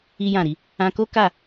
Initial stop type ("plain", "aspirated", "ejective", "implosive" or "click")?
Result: plain